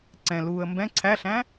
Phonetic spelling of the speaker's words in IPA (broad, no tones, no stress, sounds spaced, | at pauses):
ǀ ɛ̃ l uː ə̯ m b ɛ̃ ǀʰ æ ɬ æ̃